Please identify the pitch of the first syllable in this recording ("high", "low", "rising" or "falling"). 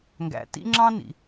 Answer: low